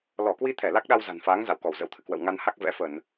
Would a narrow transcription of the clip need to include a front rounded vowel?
no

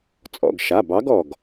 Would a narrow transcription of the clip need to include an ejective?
yes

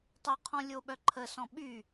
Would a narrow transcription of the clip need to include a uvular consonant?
yes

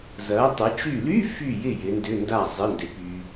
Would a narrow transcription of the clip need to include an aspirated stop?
no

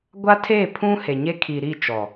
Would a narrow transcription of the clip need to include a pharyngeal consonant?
no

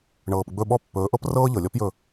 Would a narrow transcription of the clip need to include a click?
no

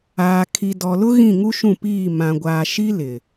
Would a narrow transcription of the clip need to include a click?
no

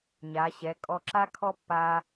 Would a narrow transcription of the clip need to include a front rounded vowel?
no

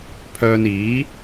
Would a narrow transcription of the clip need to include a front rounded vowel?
yes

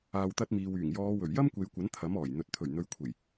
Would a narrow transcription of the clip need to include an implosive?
no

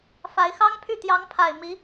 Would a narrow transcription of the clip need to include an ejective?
no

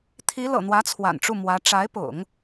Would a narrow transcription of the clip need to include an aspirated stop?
yes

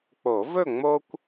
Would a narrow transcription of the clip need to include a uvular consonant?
no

